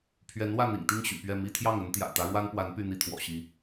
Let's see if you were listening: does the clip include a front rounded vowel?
yes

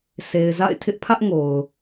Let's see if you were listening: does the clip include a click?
no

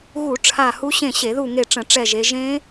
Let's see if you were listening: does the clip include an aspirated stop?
yes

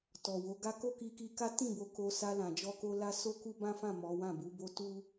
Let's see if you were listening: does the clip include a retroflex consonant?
no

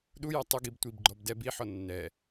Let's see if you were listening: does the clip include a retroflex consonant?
no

